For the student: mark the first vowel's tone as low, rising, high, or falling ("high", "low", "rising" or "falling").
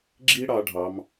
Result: high